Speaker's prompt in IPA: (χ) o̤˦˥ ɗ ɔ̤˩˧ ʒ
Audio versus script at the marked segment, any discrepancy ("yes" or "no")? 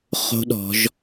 no